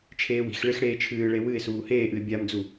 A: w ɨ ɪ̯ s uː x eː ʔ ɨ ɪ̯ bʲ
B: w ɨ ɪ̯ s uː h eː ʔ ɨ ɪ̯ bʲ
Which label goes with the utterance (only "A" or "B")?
B